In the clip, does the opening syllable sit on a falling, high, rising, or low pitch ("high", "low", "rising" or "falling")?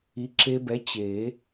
rising